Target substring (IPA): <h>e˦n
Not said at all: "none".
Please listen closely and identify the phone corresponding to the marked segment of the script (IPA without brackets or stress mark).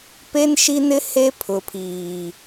p